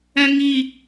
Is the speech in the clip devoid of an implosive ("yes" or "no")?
yes